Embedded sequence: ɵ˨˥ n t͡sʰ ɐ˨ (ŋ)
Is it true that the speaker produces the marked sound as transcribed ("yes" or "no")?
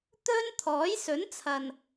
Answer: no